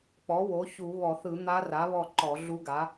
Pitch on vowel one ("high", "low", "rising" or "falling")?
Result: rising